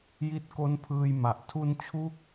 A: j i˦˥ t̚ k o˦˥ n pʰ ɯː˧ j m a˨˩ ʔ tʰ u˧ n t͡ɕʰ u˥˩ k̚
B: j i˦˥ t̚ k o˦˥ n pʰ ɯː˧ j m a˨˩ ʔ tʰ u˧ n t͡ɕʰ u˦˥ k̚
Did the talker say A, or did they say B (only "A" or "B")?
B